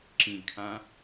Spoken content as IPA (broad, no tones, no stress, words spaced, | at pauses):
ǁĩɡkʰã